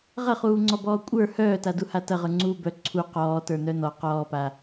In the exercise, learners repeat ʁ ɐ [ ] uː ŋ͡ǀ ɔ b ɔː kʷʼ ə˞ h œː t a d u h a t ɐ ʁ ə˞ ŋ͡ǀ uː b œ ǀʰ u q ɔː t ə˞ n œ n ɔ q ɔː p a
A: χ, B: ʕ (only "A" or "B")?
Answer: A